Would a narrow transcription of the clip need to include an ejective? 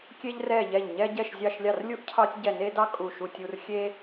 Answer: yes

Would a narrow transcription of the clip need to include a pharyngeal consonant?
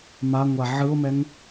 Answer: yes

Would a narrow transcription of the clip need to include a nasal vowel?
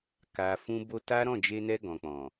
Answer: yes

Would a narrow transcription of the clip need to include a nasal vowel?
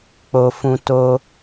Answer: yes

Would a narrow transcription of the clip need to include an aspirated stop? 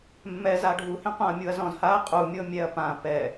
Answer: no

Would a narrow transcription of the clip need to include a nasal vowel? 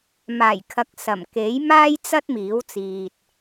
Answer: no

